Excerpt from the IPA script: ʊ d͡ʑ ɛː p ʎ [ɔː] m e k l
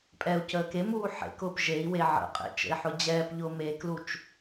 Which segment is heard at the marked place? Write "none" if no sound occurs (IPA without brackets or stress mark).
ʊː